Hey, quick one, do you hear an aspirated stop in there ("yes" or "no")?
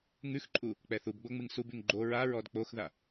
no